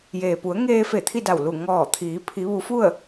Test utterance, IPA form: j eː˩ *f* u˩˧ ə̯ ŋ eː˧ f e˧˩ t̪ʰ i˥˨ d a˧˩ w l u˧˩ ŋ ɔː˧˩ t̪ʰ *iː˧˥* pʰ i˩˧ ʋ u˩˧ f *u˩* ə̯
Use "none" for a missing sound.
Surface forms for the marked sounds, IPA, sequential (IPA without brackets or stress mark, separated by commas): p, iː˩˧, u˥˨